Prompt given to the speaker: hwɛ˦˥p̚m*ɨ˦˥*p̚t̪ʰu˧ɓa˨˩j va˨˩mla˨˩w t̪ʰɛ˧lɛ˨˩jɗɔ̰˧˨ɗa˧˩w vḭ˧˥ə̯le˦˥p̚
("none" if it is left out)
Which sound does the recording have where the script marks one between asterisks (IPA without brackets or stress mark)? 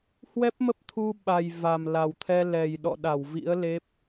ə˦˥